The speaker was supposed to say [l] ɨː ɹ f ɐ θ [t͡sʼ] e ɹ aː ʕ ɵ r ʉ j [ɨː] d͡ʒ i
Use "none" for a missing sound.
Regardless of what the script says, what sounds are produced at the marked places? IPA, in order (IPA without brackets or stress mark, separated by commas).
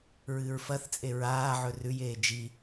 ɹ, t͡sʼ, eː